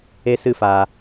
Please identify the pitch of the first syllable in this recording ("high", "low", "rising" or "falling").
high